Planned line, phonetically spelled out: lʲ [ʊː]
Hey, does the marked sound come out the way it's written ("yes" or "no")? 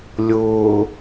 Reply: yes